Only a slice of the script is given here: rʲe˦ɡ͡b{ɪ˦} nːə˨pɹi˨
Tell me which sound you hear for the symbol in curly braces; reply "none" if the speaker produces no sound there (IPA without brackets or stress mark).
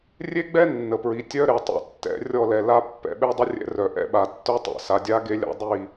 ɛ˦